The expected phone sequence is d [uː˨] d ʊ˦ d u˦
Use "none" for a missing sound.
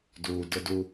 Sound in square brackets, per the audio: uː˨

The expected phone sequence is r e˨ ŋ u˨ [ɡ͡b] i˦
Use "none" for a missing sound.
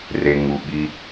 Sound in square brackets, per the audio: ɓ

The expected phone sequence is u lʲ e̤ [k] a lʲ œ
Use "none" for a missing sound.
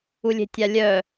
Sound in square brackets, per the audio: tʲ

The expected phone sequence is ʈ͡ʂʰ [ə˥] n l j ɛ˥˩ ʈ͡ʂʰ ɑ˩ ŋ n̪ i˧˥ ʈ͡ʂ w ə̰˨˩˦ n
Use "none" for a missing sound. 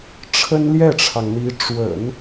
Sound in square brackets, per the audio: ə˥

